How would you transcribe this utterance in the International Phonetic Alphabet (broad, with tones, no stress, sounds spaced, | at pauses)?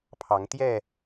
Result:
pʰ ɑ˨˦ ŋ t̪ j ɛ˥˨